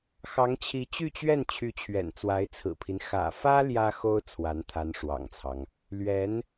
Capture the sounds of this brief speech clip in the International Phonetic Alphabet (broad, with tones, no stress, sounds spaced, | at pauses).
x ɑ˧˥ ŋ t͡ɕʰ i˧˥ t͡ɕ y˥˧ t͡ɕ ɥ ɛ˥˩ n t͡ɕʰ y˧˥ t͡ɕʰ ɥ ɛ̰˨˩ n t͡s w a˧˥ ɪ̯ t͡sʰ ɹ̩˨˩ pʰ i˦ n x ä̰˨˩ f ä˥ l j ä˥ x o˥ ʊ̯ t͡sʰ w a˧˥ n t̪ʰ a˧˥ n ʂ w ɑ̰˨˩ ŋ t͡sʰ ɑ˦ ŋ | l ɥ ɛ˧˥ n